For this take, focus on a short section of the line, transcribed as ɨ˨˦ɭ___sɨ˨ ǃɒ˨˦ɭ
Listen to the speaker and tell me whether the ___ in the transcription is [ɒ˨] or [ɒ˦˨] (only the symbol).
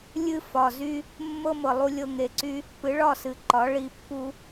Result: ɒ˦˨